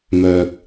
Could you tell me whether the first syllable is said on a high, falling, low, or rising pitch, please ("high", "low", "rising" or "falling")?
high